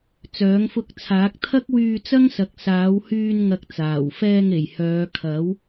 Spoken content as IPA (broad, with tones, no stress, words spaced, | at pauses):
t͡sœː˨˥ŋfʊ˧k̚t͡sʰaː˨˥k̚ t̪ʰɐ˥k̚wyː˧t͡sɐ˥ŋsɐ˨k̚ saː˨˥whyː˧nŋɐ˨˥k̚ t͡saː˨˩wfɛː˧ŋe˨˩j hœː˨˧kʰɐ˨˥w